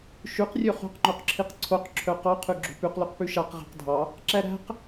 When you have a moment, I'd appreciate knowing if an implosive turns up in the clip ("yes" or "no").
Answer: no